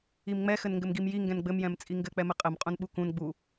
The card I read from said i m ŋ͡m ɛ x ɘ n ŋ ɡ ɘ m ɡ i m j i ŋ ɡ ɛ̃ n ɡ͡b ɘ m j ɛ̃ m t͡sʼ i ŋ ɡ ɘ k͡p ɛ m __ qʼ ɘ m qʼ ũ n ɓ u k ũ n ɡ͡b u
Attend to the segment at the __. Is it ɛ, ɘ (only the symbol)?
ɘ